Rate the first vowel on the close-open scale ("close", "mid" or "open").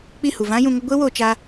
close